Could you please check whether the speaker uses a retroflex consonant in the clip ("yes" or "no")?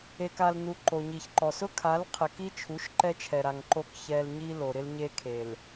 no